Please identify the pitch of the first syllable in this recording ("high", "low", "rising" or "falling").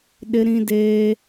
high